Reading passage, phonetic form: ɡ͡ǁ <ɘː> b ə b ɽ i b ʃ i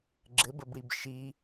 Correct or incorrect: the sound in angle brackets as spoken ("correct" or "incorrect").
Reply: incorrect